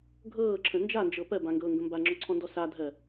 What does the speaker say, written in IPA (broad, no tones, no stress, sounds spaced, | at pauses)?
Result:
ɡʱ ɤː ǁʰ ə̃ n d͡ʒ a n d͡ʒ ɤ p ɜ b ã ŋ ɡ ɤː ŋ ɡ ə̃ m b a ŋ͡ǁ ɔ ǀʰ ɔ̃ n d ɔ s a dʱ ɜ